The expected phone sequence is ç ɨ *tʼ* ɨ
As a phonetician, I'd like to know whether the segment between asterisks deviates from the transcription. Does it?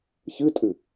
no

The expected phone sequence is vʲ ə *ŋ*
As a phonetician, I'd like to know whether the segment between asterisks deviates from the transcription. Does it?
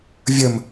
yes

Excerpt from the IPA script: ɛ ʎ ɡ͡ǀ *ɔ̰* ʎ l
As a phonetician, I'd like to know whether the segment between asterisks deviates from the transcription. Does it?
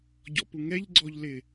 yes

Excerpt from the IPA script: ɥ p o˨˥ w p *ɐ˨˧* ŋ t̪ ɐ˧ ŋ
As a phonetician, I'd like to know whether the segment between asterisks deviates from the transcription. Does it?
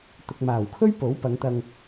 no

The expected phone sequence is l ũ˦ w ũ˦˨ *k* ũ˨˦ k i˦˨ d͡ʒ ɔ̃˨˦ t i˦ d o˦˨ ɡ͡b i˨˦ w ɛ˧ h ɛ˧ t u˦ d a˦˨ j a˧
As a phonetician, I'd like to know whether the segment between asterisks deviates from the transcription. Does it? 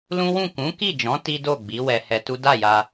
no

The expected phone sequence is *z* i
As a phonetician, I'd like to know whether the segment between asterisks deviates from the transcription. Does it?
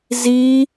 no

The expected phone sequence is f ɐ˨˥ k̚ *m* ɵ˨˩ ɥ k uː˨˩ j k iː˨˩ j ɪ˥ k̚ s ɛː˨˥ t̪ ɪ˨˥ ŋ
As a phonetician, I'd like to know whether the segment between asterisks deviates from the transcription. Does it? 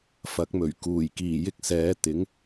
no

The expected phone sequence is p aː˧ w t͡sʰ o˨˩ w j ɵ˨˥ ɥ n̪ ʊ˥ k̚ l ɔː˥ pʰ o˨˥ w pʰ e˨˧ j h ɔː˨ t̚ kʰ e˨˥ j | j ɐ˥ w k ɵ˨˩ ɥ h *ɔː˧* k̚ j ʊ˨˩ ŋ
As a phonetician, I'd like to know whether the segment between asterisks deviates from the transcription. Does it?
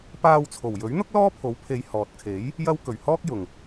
yes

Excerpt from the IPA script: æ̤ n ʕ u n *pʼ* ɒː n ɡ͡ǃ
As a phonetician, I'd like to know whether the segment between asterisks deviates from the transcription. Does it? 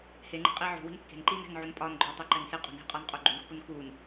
no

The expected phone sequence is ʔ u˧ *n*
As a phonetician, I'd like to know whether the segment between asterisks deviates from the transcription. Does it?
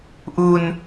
no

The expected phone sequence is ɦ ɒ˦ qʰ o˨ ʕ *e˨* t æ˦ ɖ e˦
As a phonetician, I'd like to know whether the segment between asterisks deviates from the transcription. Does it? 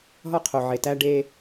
no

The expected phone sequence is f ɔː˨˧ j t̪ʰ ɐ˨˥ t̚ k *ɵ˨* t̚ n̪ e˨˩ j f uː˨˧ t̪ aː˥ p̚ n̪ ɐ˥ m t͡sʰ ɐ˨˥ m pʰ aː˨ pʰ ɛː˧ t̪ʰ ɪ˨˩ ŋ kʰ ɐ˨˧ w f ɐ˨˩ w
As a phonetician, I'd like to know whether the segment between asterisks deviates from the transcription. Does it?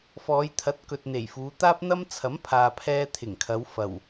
no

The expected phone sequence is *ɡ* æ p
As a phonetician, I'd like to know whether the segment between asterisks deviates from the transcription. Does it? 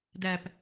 yes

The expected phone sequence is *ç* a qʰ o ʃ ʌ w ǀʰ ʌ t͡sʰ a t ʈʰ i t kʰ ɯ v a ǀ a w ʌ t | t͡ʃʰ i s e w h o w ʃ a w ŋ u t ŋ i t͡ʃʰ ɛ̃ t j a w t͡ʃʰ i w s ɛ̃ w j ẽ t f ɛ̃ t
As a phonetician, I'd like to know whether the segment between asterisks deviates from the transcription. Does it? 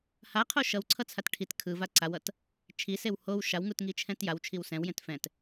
yes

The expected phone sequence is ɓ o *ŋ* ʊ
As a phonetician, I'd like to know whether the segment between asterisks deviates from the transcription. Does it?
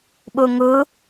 no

